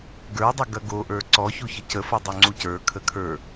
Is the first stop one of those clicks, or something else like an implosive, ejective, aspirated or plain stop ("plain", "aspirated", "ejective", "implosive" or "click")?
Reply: plain